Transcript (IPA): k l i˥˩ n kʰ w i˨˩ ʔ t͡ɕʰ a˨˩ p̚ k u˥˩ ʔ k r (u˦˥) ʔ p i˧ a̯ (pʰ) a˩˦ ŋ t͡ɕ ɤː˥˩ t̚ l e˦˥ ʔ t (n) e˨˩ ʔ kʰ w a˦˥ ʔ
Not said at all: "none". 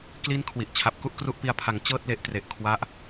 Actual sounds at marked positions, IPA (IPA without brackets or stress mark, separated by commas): u˦˥, pʰ, r